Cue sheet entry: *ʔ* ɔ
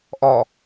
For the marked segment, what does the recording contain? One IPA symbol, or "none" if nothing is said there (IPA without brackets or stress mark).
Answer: ʔ